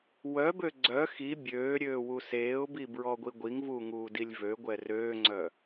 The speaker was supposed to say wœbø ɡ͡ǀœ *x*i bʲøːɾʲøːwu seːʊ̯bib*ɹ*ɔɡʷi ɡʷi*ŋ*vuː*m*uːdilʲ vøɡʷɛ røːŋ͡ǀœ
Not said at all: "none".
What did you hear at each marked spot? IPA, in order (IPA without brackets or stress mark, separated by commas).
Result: x, ɹ, ŋ, ŋ